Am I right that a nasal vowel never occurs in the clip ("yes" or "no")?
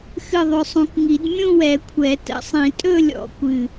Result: no